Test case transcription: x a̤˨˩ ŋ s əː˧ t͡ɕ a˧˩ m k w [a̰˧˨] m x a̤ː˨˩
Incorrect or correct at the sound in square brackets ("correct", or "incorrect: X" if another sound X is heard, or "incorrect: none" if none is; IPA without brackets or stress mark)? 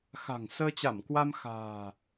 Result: incorrect: a˧